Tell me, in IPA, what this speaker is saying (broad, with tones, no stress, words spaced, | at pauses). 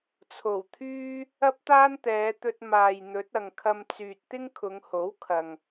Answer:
t͡sʰo˨˩wt̪ʰyː˥ | ɐ˥p̚t̪aː˥nt̪ɛː˨˧t̪ɵ˧t̚ maː˨j n̪ɵ˨˥t̚ɐ˨ŋkʰɐ˧m t͡syː˨t̚t̪ɪ˥ŋkʰʊ˨˧ŋho˨˥w kʰɐ˨ŋ